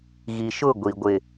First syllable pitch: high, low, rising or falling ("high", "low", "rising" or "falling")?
low